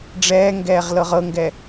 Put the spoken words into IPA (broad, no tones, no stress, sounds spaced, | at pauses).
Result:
ɖ͡ʐ ɛː ŋ ɡ ɛː ʁ l ɤ ʁ ɤ ŋ ɡ ɛ